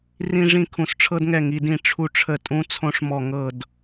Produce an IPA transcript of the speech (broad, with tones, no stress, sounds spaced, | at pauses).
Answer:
r ĩ˦ ʐ ĩ˦˨ kʰ ũ˨ s ʈ͡ʂʰ ɤ˦ d ŋ ɛ˦˨ ŋ i˨ d ĩ˦˨ ʈ͡ʂʰ u˦ ʈ͡ʂʰ ə˦˨ tʼ ũ˦ t͡sʰ õ˦ ʂ m ɔ˦˨ ŋ ɤ˦˨ d